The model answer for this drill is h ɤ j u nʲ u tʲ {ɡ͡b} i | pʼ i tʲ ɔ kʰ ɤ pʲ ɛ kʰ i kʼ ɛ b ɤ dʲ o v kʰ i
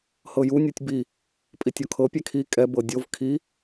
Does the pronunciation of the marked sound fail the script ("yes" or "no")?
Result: yes